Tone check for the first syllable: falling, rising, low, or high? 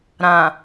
low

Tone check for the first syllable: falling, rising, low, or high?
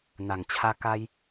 low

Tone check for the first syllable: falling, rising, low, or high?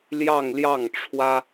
falling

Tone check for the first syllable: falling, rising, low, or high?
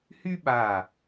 high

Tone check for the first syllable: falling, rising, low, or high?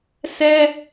high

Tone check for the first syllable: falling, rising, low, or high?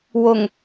low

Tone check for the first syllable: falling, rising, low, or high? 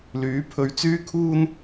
rising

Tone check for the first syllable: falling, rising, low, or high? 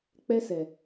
high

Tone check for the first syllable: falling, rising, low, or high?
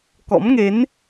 rising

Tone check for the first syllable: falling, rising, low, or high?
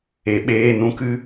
low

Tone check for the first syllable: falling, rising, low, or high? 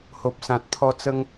low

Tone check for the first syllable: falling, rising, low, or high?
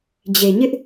low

